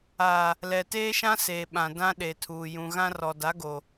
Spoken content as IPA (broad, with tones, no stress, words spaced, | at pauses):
a˨ | lɛ˨teː˦ʃã˦seː˨ ɓã˨dã˦ɗe˨tʰuː˨ jũ˨ ɣã˦rɔ˨da˨˦ɡo˨